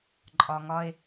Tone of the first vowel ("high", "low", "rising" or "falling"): high